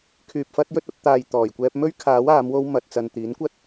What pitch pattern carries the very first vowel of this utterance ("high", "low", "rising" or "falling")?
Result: low